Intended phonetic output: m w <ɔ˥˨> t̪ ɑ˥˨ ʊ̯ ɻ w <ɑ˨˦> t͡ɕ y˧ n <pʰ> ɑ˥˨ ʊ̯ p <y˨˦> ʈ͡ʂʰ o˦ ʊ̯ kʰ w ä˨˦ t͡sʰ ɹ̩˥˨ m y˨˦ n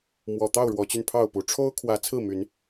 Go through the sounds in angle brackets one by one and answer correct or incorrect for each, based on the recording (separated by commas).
incorrect, incorrect, correct, incorrect